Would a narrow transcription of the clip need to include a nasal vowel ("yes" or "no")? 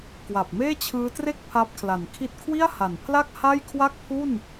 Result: no